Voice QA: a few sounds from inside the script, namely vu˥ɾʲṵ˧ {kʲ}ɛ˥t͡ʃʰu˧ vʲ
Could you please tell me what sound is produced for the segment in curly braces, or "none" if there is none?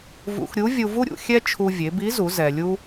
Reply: xʲ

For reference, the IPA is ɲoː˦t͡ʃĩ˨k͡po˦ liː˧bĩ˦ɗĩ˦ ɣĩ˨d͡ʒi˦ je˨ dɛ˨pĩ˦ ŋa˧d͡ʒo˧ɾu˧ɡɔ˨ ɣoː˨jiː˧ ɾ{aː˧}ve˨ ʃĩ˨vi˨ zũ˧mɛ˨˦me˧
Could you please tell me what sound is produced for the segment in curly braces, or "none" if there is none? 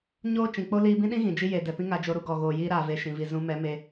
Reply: aː˨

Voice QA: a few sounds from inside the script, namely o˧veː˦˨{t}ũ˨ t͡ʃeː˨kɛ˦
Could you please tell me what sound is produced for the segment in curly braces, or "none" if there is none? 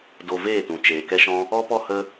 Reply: t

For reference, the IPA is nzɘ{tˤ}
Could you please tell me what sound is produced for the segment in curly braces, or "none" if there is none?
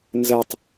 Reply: tˤ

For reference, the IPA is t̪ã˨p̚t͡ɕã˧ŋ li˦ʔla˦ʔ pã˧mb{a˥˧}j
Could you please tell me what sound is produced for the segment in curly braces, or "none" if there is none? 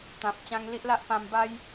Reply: a˦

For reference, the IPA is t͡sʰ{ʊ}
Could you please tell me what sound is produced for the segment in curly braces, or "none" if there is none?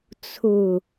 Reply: ʊ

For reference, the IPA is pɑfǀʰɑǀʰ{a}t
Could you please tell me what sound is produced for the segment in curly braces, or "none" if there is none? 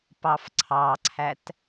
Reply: æ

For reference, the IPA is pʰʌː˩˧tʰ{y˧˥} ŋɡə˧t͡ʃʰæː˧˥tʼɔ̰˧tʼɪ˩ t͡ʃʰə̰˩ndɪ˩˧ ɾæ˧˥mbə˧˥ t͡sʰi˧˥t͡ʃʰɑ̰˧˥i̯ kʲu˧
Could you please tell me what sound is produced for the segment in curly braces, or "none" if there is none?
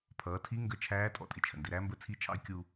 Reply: i˧˥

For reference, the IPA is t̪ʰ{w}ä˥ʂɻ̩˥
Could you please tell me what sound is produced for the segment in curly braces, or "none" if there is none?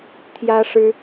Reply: j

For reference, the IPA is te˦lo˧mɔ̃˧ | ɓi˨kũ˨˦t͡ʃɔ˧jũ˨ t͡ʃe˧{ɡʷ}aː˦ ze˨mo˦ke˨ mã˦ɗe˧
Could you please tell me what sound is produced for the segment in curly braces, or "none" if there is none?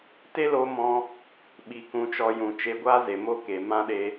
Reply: ɡʷ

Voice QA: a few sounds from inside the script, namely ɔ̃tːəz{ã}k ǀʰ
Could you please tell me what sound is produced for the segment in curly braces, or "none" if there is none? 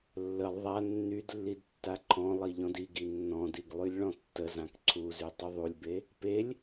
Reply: ã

